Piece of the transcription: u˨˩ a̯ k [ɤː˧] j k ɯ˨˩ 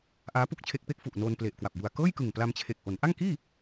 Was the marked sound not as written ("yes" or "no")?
yes